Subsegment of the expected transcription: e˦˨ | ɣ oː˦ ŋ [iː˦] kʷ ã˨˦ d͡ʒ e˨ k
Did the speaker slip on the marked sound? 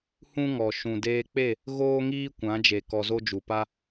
no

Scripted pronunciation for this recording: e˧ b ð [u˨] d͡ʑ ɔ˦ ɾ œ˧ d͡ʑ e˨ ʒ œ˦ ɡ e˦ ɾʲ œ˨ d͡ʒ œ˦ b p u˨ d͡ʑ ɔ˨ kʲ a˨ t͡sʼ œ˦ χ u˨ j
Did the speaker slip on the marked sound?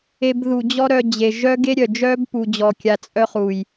no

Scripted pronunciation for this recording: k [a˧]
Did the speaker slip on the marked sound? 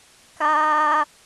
no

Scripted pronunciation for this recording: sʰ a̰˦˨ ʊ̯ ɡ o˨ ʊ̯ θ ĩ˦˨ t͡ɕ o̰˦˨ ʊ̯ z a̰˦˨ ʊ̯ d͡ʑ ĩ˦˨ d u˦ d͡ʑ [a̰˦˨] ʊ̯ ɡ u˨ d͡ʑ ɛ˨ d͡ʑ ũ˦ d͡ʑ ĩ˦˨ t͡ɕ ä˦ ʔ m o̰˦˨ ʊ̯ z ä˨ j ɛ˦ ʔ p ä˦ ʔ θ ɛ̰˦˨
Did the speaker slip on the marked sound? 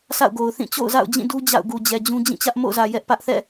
no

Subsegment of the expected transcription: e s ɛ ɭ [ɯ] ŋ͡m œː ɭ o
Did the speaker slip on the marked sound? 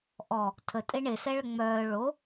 yes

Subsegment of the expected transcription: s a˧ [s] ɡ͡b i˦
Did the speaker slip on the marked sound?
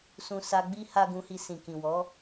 yes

